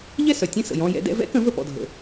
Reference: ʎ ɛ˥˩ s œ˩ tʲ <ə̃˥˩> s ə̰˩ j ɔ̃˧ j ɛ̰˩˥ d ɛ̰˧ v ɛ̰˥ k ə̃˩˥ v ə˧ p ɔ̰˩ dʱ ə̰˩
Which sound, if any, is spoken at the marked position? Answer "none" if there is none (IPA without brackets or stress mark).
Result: ə̃˥˩